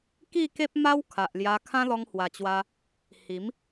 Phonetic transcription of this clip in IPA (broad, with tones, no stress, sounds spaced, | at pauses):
k i˥˧ k e˦ p̚ m a˦ w kʰ a˨ ʔ l j a˧ kʰ ã˦ l ɔ˧ ŋ h w a˨˩ t͡ɕ w a˧ | h i˨˦ m